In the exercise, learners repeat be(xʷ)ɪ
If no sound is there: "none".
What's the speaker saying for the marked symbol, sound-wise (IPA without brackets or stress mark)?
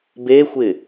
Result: xʷ